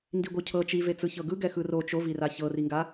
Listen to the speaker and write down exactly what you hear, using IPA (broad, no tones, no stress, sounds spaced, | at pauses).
n d i ɡʷ ɤ cʰ ɤ t͡ʃ i v e t͡s ɯ ç ɤ ɡ ɯ ɡ ɛ x ɯ r o t͡ʃ o v i r a ç ɤ r i ŋ ɡ a